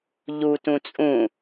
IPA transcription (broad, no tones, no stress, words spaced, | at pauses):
ʎu tũt͡sʼũ